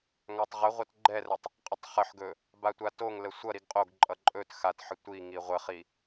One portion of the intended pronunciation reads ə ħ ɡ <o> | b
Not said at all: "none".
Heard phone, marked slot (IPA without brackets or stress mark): ɵ